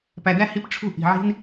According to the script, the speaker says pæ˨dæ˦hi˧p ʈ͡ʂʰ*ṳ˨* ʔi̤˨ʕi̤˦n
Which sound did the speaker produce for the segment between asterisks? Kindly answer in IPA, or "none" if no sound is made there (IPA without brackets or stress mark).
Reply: ṳ˦˨